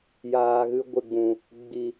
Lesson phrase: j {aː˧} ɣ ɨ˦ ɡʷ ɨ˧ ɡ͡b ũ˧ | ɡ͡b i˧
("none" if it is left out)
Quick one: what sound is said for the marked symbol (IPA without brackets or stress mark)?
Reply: aː˧